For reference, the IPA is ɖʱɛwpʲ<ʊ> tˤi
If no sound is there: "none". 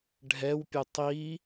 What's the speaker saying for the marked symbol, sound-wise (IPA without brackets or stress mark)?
ʊ